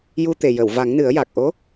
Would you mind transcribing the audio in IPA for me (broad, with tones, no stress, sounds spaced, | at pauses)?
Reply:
j u˧ t̪ e˨˩ j ə˨˩˨ w v a˨˩˦ ŋ n ɨ˨˩˦ ə̯ j a˨˩ k̚ ʔ o˧˥